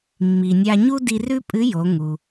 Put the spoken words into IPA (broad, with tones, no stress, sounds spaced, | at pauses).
mː i˩ nʲ a˧ ɲ u˥ d i˧ r ʉ˥ pʼ ɨ˧˥ j o˩˧ ŋ u˩